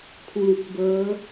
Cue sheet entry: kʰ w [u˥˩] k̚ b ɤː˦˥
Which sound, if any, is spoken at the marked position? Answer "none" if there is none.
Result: u˨˩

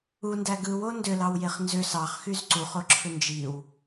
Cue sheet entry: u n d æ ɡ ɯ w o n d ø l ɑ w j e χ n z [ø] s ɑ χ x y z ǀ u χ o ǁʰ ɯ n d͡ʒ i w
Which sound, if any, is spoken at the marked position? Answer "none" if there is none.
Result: ø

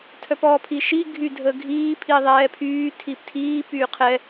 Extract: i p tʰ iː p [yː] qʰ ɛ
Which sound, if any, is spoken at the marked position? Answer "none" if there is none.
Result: yː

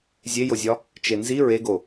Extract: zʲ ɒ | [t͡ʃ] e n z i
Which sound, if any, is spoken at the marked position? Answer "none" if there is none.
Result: t͡ʃ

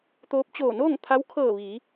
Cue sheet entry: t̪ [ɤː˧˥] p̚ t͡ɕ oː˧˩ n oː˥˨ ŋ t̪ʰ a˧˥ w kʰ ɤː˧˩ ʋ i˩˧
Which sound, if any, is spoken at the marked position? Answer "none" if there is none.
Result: oː˧˥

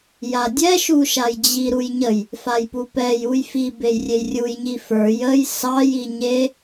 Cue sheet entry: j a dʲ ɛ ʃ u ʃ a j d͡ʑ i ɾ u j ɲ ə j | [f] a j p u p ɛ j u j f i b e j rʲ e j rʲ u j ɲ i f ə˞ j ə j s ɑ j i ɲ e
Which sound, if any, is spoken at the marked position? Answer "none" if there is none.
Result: f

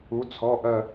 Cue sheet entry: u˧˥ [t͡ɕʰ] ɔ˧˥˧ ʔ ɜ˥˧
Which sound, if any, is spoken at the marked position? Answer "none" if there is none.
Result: t͡sʰ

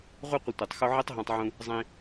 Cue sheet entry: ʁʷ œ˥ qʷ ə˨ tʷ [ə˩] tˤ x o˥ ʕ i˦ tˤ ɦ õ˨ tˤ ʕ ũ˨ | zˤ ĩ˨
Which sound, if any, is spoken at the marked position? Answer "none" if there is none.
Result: œ˩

